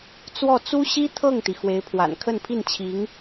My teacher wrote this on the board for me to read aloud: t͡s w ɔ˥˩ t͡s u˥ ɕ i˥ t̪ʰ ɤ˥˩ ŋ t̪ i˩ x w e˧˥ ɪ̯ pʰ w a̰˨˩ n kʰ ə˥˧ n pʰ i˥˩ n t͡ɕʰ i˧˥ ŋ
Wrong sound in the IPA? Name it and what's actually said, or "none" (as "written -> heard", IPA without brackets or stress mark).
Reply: none